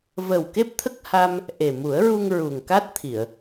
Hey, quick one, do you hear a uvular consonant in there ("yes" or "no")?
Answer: no